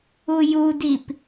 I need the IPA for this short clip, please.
u j u d i p

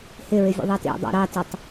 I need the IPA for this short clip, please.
h ɪ ɹ ɪ vʲ ə̰ ðˤ ɐ t ḭ dˤ ɑ̰ ɾ ɑ t ɪ tˤ

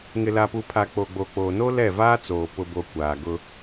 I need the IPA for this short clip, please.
ŋ ɪ˨ l a˨ p u˨ pʰ a˨ k͡p o˨ ɡ͡b o˨ k͡p oː˨ n o˦ l ɛ˦˨ v aː˦ t͡s oː˨ p ʊ˨ b o˨ kʷ aː˨ ɡ ʊ˦

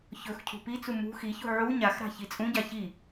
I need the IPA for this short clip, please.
ç ɵ x cʰ ṳ p i t͡s u m ṳ x i ç ṳ ʕ u ɲ a x ɾ a̤ ç i t͡sʼ ũ ɟ a ç i

